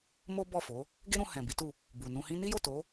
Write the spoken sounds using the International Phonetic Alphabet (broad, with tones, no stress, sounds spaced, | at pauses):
m o˦ b ɔ˦˨ f o˨˦ | ɡ e˦ ɾ ũ˧ h ɛ̃˨ b i˨˦ t u˦˨ | b u˨ n ũ˧ h ĩ˦ n i˦ j o˦˨ t o˨˦